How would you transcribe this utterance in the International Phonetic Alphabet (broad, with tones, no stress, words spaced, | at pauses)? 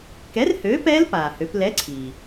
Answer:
kɛ˨˥rhøː˨˥pɛː˦˥l paː˩hø˩˧plɛ˨˥ǀʰiː˩